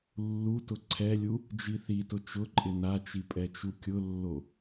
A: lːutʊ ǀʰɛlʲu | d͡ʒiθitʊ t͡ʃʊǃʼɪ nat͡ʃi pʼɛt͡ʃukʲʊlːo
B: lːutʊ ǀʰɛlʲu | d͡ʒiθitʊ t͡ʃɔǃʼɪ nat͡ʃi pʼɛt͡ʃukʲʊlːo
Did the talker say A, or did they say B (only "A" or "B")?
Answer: A